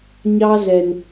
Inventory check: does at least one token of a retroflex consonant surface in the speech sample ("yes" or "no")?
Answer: no